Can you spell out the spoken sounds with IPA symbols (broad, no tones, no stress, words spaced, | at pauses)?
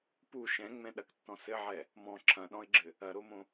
pu ʃɛ̃ŋ͡mɛ̃ ɗɐktːɔ̃ sɘʕɛ | mɔ̃ ǁʰɐ̃ɗɔ̃ɪ̯ɡ͡ǁɘ | ɐɾomõ